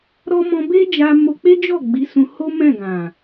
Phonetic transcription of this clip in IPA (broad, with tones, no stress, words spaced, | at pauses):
ɾɔ˦ mɔ̃˧be˦d͡ʒa˧ mo˧k͡pe˦d͡ʒɔ˦˨ ɡ͡bi˨˦sũ˧ ho˦mɛ̃˦˨ɡã˨